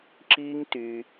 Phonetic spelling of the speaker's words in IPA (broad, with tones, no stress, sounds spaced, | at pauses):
ǁ iː˦ ŋ t y˧